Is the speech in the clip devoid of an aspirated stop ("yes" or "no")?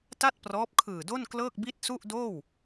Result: no